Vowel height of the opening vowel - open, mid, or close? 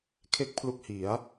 mid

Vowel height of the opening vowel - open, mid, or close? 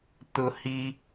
close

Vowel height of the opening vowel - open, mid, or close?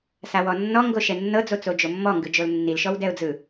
open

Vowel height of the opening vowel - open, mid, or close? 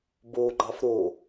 mid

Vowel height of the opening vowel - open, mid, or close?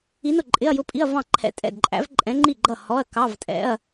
close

